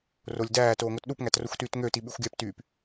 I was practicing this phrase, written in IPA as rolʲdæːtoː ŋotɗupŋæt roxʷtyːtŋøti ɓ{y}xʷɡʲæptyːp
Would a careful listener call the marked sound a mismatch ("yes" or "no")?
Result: no